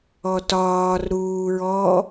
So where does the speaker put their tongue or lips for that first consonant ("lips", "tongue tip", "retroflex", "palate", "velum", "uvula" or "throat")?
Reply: tongue tip